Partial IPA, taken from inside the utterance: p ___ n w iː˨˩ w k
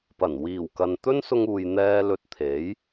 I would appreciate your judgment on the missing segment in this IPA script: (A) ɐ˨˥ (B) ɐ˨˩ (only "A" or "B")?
B